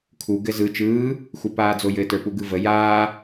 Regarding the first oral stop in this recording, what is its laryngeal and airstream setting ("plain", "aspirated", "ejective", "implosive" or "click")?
aspirated